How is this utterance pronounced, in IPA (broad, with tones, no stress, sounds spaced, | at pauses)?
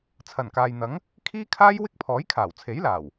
t͡sʰ ɐ˨˩ n k aː˨ j n̪ ɐ˨˥ ŋ | kʰ iː˥ kʰ aː˥ j w ɪ˥ k̚ pʰ ɔː˨˥ j kʰ aː˨˩ w t͡sʰ e˨˥ j l aː˨˩ w